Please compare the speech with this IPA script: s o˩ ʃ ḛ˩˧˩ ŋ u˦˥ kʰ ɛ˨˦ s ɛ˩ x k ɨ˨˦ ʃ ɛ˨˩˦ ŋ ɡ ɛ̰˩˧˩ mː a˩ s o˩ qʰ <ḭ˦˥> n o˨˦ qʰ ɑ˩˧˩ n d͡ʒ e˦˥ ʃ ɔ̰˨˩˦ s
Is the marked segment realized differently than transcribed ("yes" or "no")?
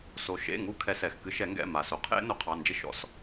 yes